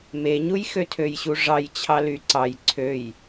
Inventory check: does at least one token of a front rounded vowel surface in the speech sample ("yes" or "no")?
yes